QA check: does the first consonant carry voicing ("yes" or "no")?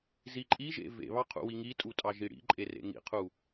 yes